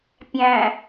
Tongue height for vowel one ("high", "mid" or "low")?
low